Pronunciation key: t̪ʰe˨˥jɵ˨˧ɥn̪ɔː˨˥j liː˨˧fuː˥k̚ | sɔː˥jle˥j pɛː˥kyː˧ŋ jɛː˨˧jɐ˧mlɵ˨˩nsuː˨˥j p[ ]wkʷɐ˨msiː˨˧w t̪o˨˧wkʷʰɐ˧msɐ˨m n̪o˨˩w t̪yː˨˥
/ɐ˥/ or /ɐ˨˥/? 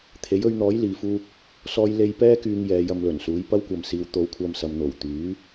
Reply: ɐ˥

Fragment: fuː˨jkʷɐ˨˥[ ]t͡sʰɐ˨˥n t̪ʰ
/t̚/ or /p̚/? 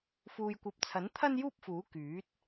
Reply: p̚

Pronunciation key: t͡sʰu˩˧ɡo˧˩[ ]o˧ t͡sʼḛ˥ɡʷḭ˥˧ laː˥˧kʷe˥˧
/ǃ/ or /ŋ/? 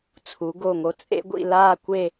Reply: ŋ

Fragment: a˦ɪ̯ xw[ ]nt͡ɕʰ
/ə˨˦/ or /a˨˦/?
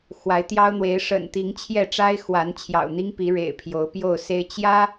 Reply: a˨˦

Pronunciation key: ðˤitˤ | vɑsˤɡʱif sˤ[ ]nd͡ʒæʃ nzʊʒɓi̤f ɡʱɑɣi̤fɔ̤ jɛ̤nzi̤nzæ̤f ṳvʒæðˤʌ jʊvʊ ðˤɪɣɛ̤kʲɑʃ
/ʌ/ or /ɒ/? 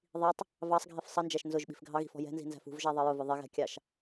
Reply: ʌ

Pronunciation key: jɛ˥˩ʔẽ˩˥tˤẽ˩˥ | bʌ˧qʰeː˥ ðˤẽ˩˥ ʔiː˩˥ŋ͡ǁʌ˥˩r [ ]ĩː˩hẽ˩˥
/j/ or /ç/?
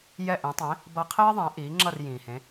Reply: j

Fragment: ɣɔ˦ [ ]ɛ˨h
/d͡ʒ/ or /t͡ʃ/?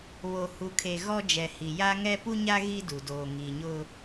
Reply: d͡ʒ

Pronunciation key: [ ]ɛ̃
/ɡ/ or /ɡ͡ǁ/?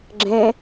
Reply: ɡ͡ǁ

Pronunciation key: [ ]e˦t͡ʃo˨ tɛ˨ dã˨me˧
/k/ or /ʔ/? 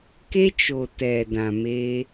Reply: k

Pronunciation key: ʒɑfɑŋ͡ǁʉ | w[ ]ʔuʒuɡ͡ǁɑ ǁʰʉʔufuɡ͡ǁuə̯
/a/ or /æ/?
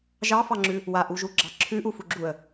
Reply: a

